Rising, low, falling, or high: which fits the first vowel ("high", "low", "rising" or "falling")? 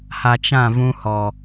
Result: low